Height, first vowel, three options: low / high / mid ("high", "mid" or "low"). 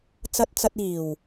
low